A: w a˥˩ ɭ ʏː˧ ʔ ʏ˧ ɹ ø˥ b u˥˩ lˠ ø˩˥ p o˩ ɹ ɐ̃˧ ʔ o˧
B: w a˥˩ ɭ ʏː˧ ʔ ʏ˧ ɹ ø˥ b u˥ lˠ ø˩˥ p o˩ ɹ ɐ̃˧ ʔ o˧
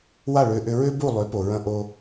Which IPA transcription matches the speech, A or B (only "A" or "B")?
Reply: A